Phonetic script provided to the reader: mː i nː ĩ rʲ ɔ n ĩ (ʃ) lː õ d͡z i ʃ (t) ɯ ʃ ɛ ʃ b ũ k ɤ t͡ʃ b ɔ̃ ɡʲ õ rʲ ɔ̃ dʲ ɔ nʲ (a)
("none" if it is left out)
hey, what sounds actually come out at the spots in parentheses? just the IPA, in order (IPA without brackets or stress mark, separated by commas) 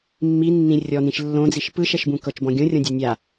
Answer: ʃ, p, a